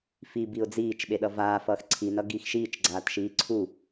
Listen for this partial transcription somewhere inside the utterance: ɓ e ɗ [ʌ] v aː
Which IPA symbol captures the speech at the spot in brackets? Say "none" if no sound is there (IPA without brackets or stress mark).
ʌ